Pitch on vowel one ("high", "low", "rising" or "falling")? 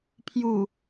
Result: low